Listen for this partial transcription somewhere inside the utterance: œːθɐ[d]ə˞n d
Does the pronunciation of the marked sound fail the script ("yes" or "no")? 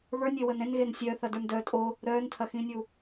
no